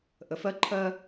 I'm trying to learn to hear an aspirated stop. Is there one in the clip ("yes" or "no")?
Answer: yes